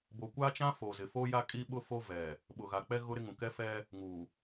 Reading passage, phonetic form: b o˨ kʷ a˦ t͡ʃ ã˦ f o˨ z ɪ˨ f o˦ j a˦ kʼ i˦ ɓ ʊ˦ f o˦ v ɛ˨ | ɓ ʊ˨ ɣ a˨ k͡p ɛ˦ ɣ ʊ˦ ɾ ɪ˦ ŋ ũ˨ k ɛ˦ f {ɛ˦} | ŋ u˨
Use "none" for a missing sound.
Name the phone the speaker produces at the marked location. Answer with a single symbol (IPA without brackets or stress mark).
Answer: ɛ˦